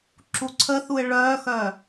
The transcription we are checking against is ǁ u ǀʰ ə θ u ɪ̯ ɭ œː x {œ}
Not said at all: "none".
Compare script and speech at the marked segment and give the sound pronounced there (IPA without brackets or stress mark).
œ